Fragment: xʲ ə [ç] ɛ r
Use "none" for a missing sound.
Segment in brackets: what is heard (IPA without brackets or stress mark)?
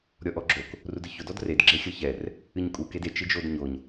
ç